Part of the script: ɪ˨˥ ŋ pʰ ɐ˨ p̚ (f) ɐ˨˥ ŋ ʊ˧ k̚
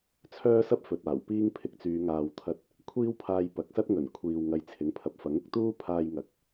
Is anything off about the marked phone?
no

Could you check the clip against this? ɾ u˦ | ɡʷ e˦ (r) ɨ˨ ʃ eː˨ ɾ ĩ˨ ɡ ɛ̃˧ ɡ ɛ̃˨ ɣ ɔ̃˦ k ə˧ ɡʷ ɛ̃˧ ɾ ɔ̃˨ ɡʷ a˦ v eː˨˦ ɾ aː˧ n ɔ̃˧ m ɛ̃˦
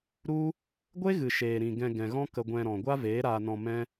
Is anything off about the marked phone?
yes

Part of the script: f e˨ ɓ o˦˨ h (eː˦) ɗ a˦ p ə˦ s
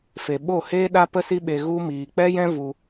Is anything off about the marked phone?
no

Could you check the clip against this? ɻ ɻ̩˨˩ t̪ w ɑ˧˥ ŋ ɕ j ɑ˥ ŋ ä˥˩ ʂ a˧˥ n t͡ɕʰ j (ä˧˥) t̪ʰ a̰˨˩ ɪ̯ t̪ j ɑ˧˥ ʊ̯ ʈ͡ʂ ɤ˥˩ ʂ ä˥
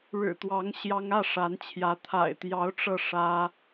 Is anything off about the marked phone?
no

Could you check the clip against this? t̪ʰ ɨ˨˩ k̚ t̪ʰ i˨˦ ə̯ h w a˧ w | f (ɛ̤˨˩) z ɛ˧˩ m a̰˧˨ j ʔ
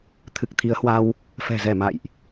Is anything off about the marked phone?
no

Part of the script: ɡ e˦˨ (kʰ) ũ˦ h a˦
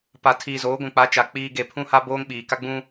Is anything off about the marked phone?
yes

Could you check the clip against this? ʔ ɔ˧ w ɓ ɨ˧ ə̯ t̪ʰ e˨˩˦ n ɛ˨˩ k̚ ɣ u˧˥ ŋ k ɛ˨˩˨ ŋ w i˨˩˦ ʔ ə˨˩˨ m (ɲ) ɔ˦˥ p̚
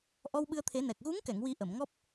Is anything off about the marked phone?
yes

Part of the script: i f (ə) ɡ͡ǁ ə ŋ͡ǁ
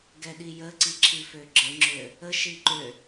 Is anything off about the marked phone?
yes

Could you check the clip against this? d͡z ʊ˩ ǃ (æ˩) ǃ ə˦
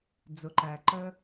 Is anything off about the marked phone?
no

